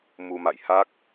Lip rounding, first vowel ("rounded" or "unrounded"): rounded